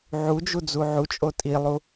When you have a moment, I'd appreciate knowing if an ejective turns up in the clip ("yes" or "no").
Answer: yes